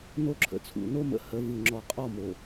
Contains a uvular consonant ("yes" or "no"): yes